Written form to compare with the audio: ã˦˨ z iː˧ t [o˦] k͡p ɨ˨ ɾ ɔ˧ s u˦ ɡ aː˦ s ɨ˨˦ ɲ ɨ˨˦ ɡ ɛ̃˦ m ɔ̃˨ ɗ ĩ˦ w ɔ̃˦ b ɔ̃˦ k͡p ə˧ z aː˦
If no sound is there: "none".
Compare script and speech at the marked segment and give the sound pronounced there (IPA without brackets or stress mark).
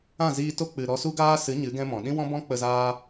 o˦